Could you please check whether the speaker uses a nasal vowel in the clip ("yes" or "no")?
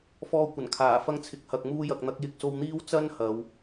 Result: no